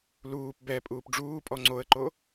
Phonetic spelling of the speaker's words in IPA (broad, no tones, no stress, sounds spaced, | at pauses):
l uː p b ɛ pʼ uː p ɖ͡ʐ uː pʼ ɔ ŋ͡ǀ o ə̯ ǃ o